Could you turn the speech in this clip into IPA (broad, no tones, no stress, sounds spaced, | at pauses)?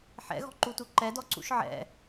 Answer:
ħ ɛ̰ ɣ ɔ̤ ǃ u t u ǃ ɛ d ɔ ǀ ṵ ʃ ʕ ɛ̰